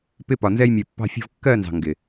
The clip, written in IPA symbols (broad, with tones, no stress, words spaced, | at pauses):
pɪ˧ pɒ˨nzɛ˧jmʲɜ˨ pːɑ̤˧fʲɔ̤˧vkːɜ˦˨ nzɑ̤˨ŋɡɪ˨